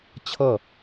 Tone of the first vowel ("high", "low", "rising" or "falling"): falling